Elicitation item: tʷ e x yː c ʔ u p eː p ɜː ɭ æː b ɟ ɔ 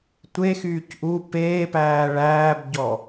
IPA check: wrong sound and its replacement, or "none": ɜː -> æː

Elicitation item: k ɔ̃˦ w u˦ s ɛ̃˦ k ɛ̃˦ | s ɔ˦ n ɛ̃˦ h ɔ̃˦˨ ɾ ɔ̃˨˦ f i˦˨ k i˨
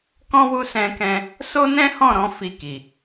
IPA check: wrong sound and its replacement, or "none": ɔ˦ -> o˦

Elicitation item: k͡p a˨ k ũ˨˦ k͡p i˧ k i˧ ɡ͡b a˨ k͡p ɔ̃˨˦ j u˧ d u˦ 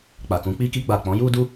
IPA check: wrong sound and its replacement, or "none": none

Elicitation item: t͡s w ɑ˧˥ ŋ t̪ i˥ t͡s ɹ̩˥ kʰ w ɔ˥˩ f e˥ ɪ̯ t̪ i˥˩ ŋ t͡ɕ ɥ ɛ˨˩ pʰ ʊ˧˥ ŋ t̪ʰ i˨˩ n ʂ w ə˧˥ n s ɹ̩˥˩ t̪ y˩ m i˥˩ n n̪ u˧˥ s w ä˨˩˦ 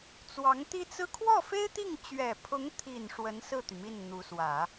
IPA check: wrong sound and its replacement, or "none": none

